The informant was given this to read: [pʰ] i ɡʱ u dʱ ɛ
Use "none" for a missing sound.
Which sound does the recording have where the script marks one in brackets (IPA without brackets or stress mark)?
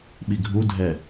ɓ